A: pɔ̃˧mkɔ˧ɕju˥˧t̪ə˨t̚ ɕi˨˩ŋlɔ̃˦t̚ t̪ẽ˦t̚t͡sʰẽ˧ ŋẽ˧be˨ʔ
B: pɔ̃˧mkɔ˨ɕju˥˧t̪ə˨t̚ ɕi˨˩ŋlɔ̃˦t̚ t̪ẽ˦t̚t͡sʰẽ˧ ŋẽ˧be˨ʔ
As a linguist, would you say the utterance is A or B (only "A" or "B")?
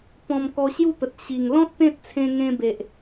A